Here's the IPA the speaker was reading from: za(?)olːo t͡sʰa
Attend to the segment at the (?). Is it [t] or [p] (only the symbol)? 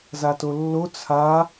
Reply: t